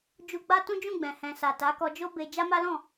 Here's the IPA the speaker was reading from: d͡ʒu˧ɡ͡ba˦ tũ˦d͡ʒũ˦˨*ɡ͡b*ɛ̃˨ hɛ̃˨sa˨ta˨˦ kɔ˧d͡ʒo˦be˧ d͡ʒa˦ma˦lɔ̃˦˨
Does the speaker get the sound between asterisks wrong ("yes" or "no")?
no